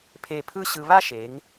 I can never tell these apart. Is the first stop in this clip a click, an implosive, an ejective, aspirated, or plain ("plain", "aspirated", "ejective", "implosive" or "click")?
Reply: aspirated